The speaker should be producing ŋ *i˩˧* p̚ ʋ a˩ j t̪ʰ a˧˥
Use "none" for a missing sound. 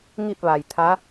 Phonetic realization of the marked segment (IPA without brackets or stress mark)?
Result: i˥˨